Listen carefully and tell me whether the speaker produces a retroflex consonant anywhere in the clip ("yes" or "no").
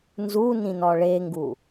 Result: yes